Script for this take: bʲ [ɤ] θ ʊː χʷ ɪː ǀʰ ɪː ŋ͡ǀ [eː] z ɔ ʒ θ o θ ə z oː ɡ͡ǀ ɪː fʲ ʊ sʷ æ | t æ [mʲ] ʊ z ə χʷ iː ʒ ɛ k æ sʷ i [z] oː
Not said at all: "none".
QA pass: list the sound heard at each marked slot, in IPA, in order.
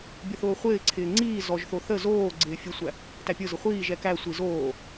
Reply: ɤ, iː, pʲ, z

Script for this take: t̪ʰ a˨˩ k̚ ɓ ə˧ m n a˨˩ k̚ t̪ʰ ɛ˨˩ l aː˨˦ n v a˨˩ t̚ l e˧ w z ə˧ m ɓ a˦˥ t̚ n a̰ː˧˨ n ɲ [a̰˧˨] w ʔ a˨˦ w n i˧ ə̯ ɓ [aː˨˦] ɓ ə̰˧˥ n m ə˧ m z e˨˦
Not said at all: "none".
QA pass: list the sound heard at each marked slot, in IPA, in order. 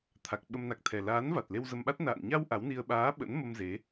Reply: a˧, aː˨˦

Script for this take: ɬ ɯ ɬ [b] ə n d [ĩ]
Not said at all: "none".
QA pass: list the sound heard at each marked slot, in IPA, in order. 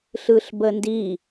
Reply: b, i

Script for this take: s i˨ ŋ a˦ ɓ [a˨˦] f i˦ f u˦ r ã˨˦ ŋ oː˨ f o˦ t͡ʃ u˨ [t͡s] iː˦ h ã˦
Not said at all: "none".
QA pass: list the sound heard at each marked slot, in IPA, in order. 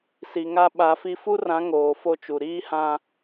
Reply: a˨˦, ɾ

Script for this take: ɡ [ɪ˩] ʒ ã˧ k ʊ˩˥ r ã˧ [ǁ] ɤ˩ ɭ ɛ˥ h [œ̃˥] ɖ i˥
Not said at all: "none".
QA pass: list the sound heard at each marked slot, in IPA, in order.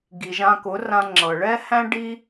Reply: i˩, ŋ͡ǁ, æ̃˥

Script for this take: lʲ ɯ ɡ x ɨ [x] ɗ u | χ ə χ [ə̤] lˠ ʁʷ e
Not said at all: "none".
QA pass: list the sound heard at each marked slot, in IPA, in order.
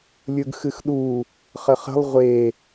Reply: x, ə̤

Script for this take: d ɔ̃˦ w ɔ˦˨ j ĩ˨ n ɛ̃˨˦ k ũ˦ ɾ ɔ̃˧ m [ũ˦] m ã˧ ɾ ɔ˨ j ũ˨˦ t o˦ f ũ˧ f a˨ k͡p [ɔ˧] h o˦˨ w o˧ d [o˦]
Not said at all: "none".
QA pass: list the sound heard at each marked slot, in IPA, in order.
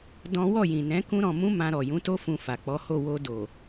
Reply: ũ˦, ɔ˨˦, o˨

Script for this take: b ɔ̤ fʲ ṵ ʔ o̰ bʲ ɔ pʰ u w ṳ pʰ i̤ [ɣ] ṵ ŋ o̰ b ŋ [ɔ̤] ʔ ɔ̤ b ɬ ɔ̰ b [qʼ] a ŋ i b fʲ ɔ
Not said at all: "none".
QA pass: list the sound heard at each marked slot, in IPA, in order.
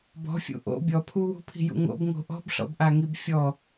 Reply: j, o̤, ʔ

